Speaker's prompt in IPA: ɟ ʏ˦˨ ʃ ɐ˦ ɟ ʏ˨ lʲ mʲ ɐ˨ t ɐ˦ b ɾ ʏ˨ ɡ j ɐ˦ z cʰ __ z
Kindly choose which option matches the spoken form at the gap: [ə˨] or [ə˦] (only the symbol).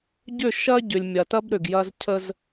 ə˦